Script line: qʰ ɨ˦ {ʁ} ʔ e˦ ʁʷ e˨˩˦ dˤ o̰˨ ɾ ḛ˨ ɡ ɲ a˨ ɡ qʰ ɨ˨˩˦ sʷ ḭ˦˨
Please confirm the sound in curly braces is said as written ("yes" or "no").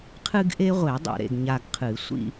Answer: no